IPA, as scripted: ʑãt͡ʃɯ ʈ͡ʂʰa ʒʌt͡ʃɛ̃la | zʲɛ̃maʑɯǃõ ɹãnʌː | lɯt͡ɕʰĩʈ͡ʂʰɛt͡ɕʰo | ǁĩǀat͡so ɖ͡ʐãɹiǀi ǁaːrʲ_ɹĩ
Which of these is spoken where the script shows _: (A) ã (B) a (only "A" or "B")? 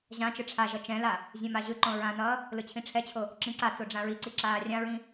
A